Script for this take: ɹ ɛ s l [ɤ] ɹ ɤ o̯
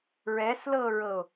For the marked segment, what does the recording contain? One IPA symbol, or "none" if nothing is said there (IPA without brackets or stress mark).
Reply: ɤ